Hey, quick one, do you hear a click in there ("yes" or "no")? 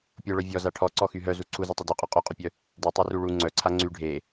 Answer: yes